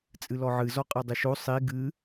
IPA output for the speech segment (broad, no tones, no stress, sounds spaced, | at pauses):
t͡sʼ ɨ l ɔ ʕ ɨ z ɔ qʼ ɜ dˤ ɨ ʃ o sˤ i ɡ ɨ